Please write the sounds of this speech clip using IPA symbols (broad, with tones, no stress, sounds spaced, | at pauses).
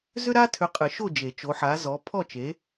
z ʏ˥ ɾ a˥ tʰ ʏ˨˥ qʼ ɨ˨˩˦ ʃ o˥˨ d͡ʒ e˨˩˦ t͡ʃ o˨˥ ħ a˨˥ z ɔ˨˥ pʰ ɔ˥˨ t͡ʃ e˨˥